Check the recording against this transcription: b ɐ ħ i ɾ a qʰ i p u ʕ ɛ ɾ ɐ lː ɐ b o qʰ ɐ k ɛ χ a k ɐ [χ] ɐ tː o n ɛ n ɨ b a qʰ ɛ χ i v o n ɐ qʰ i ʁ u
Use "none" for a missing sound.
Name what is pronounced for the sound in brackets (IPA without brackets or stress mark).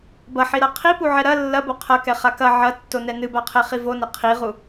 ʕ